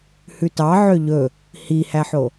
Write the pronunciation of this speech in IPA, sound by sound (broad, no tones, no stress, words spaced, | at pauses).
hʉtɑʕø ʎɵ | hihæħo